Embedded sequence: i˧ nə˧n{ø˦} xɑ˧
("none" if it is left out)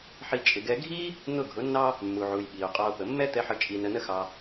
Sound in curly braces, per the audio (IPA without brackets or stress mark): ə˦